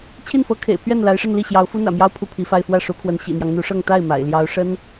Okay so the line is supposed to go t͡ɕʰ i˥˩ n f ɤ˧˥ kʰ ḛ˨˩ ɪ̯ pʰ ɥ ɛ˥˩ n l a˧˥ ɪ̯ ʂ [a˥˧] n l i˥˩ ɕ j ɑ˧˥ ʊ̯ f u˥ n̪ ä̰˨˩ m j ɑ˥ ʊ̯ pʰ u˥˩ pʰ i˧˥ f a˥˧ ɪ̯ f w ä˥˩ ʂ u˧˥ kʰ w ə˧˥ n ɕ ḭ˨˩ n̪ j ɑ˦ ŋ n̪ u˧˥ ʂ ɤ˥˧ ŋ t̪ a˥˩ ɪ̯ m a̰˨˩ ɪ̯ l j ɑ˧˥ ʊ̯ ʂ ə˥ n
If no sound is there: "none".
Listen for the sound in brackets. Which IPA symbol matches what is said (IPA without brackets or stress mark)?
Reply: ə˥˧